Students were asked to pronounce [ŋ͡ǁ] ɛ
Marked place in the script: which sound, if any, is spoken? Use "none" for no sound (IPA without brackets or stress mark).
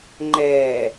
ŋ͡ǃ